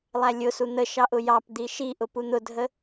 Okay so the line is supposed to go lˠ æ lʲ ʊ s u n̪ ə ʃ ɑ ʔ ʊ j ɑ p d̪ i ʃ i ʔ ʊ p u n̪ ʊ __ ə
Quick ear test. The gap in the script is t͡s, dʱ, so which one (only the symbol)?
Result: dʱ